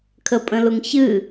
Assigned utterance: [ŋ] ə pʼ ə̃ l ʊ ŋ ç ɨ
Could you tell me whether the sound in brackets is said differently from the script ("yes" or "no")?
yes